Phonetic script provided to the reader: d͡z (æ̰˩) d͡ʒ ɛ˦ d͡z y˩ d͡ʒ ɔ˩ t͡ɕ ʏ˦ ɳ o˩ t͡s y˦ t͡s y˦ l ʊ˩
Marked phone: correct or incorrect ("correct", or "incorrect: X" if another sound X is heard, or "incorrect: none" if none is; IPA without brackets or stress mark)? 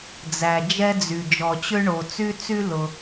incorrect: æ˩